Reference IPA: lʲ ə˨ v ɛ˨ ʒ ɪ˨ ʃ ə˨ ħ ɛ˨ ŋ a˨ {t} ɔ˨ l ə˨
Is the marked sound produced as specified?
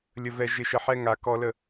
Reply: no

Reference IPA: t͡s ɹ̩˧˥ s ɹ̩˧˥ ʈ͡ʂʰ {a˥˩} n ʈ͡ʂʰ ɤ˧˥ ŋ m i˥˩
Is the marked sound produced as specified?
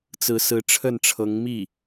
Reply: no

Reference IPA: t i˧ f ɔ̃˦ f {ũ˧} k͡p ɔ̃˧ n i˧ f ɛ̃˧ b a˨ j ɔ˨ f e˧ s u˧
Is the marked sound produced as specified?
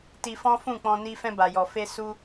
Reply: no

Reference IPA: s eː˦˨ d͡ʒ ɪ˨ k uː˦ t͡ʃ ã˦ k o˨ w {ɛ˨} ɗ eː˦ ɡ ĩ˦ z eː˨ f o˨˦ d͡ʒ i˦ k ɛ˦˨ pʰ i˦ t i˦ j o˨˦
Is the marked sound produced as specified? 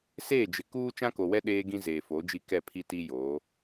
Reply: no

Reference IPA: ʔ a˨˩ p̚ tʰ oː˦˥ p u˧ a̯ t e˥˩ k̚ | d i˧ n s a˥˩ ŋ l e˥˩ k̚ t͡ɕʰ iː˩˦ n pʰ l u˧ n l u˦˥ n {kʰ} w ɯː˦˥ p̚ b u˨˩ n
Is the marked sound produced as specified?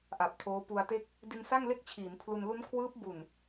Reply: yes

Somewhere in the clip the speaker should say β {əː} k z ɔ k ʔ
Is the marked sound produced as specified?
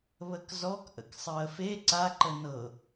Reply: no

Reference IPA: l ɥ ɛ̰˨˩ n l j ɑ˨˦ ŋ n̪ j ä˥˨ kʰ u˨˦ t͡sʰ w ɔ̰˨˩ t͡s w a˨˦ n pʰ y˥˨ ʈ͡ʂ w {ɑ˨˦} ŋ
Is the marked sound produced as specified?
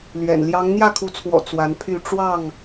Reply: no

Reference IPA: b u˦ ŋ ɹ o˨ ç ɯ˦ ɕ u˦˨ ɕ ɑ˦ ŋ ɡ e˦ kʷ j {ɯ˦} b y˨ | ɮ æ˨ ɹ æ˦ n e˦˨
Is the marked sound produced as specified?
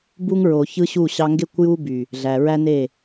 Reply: no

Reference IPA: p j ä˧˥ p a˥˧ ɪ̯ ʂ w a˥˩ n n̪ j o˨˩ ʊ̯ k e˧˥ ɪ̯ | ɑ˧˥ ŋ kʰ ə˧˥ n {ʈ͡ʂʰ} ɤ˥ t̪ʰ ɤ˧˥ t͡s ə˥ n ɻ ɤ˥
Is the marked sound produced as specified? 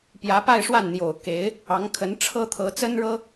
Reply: yes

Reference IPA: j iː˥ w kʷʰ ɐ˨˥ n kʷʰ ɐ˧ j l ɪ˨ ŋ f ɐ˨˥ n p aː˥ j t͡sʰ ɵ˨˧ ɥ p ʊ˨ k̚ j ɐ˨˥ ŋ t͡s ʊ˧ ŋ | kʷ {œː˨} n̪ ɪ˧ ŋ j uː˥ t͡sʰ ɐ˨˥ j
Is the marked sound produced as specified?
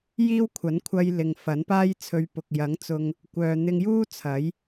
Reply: yes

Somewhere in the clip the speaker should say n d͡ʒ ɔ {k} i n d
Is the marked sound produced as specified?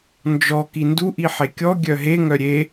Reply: yes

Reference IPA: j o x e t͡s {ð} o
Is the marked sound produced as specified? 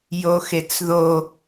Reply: yes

